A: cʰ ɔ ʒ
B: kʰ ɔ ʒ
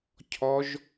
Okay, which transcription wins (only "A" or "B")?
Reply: A